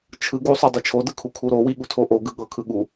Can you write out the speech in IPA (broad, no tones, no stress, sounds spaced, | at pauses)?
t͡ʃʰ ɯ ɡ u sˤ o dˤ u t͡ʃʰ o d ɯ kʰ u kʰ u ɾ o w i ɠ u tʰ o ʔ o ɡ ɯ ɠ ɤ kʰ ɯ ɠ u